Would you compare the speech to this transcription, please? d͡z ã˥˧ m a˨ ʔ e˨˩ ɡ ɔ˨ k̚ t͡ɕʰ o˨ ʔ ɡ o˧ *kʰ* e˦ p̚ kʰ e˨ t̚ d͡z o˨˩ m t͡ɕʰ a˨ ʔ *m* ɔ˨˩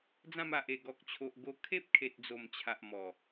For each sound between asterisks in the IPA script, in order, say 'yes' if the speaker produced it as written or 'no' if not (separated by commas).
yes, yes